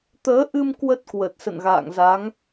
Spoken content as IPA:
t̪ əː˨˦ ʔ ɨ˧ m k w ə˦˥ t̚ k w ə˨˩ t̚ s ə̰˧˨ n ɣ a̰ː˧˨ ŋ z a˨˦ ŋ

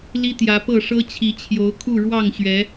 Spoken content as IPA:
l i˦ t̪ j ä˨˦ p ɤ˥˨ ʂ ɤ˦ t͡ɕʰ i˨˦ t͡ɕʰ j o˨˦ ʊ̯ kʰ u˥˨ ɻ w ɑ˥˨ ŋ ɕ ɥ ɛ˨˦

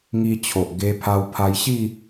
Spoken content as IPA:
ŋ i˧ t͡ɕʰ o˨ ʔ ɡ e˧ pʰ a˧ w pʰ a˧ j ɕ i˥˧

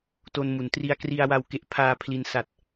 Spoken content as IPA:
t o˧ n m u˩˦ n t r i˧ a̯ k r i˧ a̯ w a˧ w k e˥˩ ʔ pʰ aː˧ pʰ l i˧ n s a˨˩ t̚

